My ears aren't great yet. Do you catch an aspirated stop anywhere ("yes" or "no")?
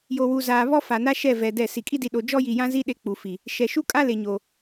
no